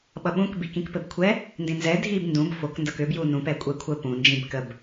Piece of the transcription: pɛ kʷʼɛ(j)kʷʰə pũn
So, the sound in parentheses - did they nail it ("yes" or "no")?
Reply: no